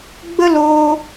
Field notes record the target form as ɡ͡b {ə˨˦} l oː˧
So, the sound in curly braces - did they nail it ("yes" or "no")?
no